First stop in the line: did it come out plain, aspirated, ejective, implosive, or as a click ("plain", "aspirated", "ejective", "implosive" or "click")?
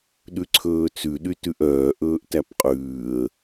implosive